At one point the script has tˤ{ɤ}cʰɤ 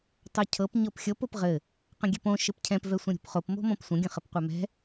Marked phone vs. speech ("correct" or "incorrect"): incorrect